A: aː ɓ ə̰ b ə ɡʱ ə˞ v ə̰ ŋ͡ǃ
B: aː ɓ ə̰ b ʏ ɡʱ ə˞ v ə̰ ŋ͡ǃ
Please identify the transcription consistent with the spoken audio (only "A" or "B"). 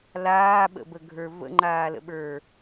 A